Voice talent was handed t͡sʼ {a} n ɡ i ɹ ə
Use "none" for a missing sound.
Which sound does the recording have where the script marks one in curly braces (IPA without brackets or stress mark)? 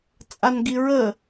a